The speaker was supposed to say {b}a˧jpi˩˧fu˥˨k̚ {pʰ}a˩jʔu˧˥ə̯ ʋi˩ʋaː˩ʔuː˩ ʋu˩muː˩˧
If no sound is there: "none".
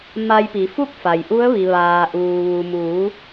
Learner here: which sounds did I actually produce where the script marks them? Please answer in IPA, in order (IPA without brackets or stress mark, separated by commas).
m, f